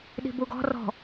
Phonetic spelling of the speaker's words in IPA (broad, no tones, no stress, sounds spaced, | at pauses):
ɗ i̤ b u ɡ ɔ̤ r ɔ̤